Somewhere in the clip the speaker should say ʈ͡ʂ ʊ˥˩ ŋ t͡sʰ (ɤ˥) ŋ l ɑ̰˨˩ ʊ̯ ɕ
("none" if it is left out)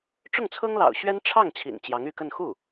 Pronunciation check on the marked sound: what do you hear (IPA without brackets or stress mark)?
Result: ɤ˥